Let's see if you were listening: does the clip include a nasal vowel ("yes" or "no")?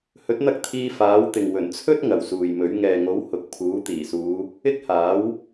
no